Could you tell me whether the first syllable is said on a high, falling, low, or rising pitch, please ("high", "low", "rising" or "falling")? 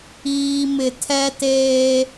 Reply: low